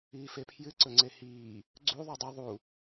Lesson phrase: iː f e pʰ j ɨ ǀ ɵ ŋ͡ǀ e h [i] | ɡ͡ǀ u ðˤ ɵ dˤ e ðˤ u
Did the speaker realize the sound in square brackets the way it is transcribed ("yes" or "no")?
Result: no